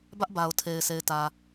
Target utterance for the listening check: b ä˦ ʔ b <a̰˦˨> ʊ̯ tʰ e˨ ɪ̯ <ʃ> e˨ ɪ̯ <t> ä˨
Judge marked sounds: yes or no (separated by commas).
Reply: no, no, yes